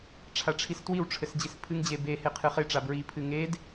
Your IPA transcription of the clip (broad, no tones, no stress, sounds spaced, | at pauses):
ʈ͡ʂʰ a ʈ͡ʂʰ i s t w i w ʈ͡ʂʰ ɘ s d͡ʑ i s pʰ ɨ ŋ d͡ʑ e b e h e qʰ ɨ χ e ʈ͡ʂ a b ɹ i pʰ ɨ ŋ e d